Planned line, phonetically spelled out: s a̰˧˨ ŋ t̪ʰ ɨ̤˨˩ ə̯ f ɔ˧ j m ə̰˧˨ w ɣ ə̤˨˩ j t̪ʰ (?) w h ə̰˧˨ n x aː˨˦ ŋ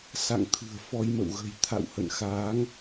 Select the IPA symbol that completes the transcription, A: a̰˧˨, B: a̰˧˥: A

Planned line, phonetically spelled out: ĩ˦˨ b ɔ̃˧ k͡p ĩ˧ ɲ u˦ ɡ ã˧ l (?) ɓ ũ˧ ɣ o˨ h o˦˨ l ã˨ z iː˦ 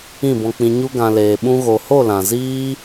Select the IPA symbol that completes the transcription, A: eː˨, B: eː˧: A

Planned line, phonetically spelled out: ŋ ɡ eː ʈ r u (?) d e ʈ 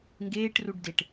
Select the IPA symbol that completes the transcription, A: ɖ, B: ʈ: A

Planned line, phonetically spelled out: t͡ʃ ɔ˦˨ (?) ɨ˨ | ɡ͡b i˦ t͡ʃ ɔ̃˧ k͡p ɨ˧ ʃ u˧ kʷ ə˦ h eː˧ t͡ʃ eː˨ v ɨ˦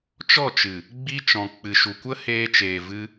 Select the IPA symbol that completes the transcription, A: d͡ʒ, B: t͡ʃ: B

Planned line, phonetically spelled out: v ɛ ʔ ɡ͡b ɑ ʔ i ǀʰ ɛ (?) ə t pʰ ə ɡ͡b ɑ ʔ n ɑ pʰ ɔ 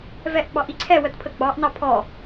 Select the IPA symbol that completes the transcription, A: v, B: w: B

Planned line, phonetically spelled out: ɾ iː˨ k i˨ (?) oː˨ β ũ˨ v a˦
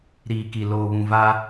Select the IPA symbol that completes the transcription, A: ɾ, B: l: B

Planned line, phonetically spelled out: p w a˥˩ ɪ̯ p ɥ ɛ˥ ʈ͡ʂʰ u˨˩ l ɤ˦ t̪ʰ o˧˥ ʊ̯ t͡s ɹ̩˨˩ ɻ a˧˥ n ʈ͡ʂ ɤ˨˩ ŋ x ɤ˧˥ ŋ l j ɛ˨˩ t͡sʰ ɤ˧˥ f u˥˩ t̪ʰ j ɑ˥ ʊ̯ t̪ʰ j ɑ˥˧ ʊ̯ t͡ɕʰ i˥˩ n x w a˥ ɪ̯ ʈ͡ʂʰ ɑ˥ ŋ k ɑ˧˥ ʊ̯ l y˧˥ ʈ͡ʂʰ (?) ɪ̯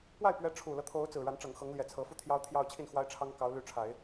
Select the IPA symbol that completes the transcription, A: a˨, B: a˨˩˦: B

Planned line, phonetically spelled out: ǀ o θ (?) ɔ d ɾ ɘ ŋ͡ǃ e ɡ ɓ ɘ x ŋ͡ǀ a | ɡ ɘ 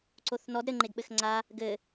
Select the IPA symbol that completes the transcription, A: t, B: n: B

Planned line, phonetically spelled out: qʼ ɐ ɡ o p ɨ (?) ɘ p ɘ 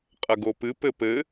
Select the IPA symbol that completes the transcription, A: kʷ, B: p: B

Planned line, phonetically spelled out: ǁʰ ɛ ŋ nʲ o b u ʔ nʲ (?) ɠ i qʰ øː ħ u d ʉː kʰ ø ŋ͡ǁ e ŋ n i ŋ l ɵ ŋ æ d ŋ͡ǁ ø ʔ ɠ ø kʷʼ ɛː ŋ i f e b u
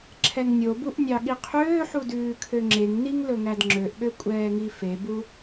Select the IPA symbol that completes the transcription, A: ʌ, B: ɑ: B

